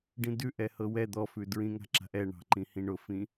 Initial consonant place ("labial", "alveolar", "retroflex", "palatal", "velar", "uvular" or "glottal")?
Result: retroflex